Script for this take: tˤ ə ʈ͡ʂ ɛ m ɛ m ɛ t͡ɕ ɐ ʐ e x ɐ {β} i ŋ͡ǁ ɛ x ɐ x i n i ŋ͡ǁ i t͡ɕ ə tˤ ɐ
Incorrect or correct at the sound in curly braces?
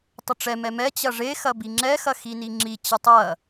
incorrect: b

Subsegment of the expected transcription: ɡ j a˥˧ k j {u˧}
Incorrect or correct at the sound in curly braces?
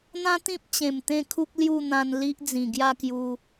correct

